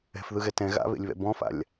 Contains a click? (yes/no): no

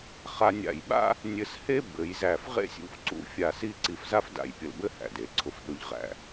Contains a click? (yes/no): yes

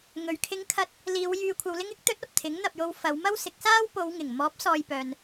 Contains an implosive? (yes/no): no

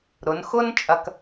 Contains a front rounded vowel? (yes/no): no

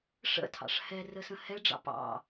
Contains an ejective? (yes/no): no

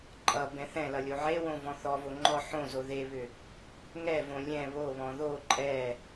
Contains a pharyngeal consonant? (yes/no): yes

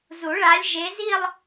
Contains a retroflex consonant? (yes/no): yes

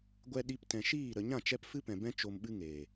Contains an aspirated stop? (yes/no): no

